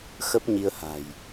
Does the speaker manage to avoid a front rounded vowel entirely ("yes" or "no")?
yes